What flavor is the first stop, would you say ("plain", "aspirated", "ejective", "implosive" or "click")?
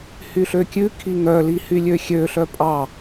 plain